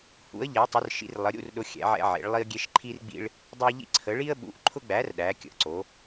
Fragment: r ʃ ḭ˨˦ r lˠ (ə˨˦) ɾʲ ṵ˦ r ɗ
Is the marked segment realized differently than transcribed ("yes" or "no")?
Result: no